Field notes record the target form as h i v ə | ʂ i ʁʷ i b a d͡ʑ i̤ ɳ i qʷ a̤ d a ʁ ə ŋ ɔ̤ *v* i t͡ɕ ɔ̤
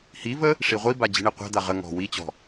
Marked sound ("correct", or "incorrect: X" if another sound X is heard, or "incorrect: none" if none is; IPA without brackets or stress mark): incorrect: w